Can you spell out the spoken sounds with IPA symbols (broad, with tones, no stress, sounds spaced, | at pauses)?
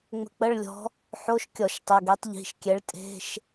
ŋ͡m ə̤˧ k͡p ə˧˥˧ ɭ lʲ ɔ̤˧˥ | ħ o˧˥˧ ʃ kʲ ɔ˧˩˧ ʃ tˤ ə˩˧˩ ɡ ɛ˧˥ tˤ ʎ i̤˩˧˩ ʃ kʲ ɛ˧˥ ɭ tʼ e̤˧˥˧ ʃ